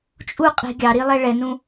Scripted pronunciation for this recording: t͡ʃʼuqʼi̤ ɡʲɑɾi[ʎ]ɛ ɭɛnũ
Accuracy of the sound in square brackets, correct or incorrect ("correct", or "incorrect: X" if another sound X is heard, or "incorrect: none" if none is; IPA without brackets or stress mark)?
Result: incorrect: lˠ